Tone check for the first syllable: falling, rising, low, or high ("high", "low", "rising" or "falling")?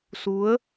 rising